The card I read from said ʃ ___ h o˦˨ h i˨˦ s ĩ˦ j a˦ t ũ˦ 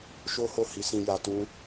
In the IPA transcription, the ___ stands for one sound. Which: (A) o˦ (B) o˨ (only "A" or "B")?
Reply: A